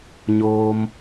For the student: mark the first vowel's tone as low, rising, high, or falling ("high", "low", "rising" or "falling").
low